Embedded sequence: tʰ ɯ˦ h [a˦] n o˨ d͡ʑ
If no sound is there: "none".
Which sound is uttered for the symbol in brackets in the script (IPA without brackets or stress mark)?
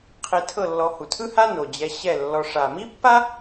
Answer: a˦